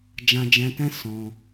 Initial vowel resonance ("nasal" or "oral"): nasal